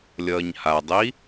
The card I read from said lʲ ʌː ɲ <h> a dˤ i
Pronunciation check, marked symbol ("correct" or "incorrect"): correct